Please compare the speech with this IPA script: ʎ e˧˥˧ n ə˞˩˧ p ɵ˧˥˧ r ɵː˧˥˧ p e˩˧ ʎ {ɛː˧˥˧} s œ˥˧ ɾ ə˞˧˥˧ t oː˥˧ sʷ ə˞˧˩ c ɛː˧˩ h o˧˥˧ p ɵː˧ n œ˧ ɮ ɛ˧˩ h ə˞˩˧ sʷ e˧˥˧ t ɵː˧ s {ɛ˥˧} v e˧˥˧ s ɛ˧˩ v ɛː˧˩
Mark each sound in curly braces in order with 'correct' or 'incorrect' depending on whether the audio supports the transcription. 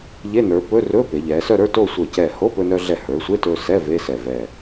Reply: incorrect: ɛː˩˧, incorrect: ɛ˧˥˧

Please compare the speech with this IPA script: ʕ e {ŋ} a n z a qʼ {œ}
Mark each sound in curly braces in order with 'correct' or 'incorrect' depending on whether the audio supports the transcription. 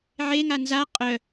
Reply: correct, correct

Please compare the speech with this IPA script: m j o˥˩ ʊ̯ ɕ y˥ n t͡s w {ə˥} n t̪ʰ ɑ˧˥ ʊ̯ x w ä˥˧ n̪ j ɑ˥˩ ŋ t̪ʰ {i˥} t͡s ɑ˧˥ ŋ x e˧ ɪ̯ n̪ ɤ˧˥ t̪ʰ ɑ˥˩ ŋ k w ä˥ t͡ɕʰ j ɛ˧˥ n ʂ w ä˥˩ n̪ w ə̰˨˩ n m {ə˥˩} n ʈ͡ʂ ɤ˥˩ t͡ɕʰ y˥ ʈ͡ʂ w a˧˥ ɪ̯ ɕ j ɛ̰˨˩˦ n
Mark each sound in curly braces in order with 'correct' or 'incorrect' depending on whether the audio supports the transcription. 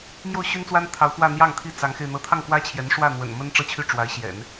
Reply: incorrect: a˥, correct, incorrect: ə˥

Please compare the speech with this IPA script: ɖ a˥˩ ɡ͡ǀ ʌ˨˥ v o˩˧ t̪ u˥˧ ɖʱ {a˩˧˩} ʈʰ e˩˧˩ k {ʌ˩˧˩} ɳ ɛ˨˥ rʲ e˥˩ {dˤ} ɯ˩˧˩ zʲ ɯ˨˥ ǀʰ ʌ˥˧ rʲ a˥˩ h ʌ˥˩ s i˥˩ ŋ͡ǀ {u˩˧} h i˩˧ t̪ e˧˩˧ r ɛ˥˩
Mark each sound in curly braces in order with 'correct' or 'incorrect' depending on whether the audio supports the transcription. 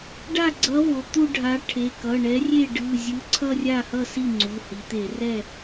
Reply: incorrect: a˨˥, correct, incorrect: ɖ, incorrect: u˩˧˩

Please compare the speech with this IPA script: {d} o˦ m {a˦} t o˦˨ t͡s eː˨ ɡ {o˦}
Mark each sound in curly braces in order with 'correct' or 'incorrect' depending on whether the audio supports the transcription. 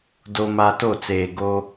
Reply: correct, correct, correct

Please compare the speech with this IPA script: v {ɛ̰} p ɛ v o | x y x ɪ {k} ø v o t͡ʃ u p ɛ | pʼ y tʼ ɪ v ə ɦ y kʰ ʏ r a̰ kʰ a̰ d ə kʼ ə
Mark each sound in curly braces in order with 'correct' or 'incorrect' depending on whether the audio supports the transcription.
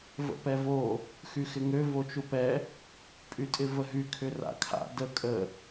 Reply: incorrect: ə̰, incorrect: ŋ

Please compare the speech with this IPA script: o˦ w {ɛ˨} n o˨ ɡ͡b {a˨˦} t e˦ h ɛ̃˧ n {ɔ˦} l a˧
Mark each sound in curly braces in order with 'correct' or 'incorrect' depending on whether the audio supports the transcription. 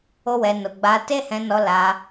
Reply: incorrect: ɛ˧, incorrect: a˧, incorrect: ɔ˧

